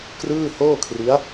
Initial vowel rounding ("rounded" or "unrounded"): unrounded